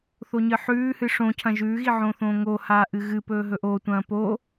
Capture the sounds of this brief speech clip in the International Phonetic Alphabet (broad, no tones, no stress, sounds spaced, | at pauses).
θ o ɲ ɨ ħ ʉː h ɨ ʂ õ cʰ ɐ̃ ʒ ʉː ɣ i ʕ õ θ õː ŋ o h aː ʔ ɨ ɣ ɨ p ɵː ɦ ɵ ʔ oː tʷ ɐ̃ː p o